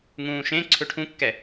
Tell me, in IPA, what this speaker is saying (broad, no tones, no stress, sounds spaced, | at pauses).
ŋ ũː ʃ ẽ ǀʰ ø ʈʰ ũ kː ɛ